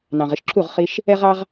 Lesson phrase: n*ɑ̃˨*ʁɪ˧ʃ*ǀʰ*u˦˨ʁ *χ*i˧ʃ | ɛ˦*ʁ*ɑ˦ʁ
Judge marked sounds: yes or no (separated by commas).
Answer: yes, no, yes, yes